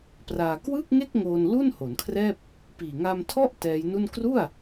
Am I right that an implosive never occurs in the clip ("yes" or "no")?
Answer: yes